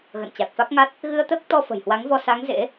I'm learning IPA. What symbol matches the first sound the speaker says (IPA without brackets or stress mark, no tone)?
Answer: ɣ